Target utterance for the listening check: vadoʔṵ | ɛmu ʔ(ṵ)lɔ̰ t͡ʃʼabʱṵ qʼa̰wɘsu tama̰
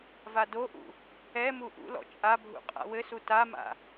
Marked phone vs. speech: correct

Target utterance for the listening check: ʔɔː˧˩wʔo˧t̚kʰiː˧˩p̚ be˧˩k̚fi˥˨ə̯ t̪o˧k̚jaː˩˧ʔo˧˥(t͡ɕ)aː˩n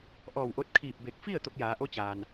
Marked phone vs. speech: correct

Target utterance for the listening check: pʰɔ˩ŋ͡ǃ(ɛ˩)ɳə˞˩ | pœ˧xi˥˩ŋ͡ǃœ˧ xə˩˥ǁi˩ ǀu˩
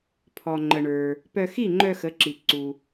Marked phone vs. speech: incorrect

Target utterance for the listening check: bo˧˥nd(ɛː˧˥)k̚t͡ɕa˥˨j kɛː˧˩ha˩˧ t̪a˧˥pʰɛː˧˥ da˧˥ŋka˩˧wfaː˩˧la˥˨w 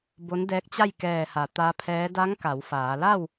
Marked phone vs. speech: correct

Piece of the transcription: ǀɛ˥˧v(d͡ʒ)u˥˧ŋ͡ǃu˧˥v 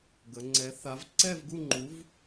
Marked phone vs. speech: incorrect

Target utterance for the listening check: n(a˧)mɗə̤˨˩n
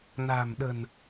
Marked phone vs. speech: incorrect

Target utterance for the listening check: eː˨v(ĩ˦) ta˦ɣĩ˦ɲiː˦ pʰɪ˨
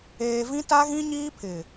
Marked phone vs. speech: correct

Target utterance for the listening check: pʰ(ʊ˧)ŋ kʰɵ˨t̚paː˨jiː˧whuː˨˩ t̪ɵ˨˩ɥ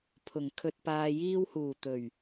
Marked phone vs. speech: incorrect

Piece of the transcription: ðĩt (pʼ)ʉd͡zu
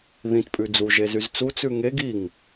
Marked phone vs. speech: correct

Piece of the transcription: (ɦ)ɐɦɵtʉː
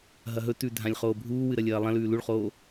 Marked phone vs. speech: correct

